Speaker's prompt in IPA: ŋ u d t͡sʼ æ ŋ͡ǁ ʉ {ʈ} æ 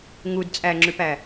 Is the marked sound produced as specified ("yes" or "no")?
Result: no